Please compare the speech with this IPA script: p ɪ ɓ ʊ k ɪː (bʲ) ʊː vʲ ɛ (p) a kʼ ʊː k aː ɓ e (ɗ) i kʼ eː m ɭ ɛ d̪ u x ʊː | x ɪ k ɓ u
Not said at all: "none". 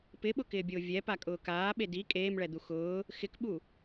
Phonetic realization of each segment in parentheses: bʲ, p, d

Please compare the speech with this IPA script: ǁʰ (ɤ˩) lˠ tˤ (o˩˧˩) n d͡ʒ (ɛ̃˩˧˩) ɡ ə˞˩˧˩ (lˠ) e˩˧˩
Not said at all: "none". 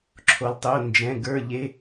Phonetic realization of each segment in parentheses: o˩, o˩˧˩, ɛ̃˩˧˩, ʎ

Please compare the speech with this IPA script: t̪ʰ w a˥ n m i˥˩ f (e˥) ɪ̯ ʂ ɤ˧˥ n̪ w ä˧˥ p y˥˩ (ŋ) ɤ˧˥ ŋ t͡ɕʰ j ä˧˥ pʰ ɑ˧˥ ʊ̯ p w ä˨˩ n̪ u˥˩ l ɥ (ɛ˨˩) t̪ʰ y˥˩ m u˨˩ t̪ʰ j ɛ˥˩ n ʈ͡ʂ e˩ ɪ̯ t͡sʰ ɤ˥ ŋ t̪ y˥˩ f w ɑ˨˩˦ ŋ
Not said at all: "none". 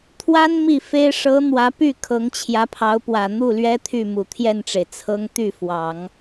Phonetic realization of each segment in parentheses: e˥, kʰ, ɛ˥

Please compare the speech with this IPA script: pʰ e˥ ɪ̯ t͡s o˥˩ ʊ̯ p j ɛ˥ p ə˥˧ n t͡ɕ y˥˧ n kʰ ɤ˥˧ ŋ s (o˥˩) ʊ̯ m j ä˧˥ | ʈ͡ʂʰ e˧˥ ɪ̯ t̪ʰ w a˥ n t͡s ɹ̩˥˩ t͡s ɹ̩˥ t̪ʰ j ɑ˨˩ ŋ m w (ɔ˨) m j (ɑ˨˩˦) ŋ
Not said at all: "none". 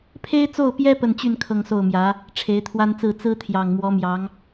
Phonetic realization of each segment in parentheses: o˥˩, ɔ˧˥, ɑ˧˥

